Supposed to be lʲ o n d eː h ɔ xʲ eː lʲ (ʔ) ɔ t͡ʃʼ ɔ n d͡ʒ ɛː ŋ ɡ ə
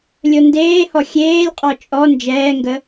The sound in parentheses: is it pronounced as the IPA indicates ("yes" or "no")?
no